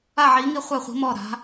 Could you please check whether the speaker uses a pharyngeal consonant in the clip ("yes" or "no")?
yes